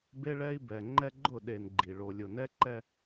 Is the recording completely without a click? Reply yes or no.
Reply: no